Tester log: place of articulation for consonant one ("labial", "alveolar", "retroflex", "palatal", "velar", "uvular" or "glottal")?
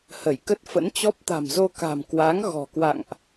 glottal